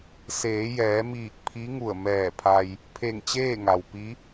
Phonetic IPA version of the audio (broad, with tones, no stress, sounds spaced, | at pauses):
s eː˩˧ j ɛː˩˧ m iː˧˩ k̚ pʰ i˧˥ ŋ u˧˩ ə̯ m ɛː˧˩ pʰ a˧ j | pʰ e˧˩ ŋ t͡ɕ eː˥˨ ŋ a˩ w p i˧˥